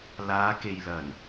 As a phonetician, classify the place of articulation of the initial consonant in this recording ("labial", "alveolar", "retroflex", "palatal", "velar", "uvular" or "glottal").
alveolar